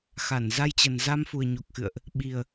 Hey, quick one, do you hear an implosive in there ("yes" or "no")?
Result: yes